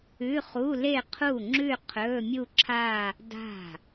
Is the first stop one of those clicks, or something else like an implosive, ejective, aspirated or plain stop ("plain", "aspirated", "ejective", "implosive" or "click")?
aspirated